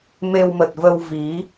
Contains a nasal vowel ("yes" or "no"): no